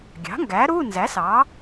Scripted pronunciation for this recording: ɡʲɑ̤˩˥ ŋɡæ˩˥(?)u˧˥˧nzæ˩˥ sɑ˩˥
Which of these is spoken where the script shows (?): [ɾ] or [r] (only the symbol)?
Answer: ɾ